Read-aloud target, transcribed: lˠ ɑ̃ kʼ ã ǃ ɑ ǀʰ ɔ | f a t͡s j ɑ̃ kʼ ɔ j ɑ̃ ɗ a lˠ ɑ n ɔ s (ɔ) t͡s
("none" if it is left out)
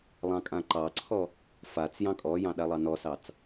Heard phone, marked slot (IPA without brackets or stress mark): ɑ